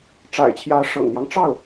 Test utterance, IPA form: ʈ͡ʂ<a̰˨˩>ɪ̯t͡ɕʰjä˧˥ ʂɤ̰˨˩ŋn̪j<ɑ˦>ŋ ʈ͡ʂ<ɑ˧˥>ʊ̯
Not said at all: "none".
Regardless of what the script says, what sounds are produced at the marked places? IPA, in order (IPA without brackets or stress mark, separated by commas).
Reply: a̰˨˩, ɑ˦, ɑ˥˩